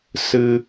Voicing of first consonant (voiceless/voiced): voiceless